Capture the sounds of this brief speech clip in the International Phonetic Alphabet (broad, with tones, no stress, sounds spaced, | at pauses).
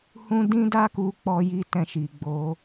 h ũ˦ d ĩ˦ d a˦ k u˧ k͡p ɔ˦ j i˦ t ɛ̃˦˨ ʃ i˨ ɡ͡b o˨˦